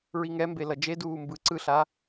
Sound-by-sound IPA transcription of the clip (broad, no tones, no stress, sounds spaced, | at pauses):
ɹ i ŋ ɛ m b e l ʌ d͡ʒ e d uː m b ɯ ǀ ɯ ɬ a